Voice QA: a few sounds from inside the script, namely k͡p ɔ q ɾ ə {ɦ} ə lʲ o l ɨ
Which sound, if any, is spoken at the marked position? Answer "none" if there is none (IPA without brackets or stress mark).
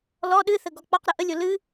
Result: ʔ